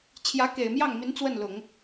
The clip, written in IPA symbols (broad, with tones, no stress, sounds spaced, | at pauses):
t͡ɕʰ j ä˧˥ k e˨˩ ɪ̯ m j ɑ˥˩ ŋ m i˧˥ n t͡s w ə˥˩ n l ʊ˨˩˦ ŋ